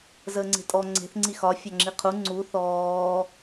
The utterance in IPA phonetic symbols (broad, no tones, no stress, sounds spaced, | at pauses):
z əː ŋ͡ǀ e̤ tʼ ɔ ŋ͡ǀ e̤ θ ŋ͡ǀ i x ɒ fʲ ɒ ŋ͡ǁ i qʰ u ŋ͡ǀ u θ ɔː